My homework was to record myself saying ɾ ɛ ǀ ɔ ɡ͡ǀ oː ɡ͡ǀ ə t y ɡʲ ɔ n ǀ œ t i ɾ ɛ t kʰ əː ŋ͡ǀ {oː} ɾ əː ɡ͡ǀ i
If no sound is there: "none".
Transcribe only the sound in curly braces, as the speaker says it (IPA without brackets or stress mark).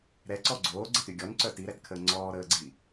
ɔː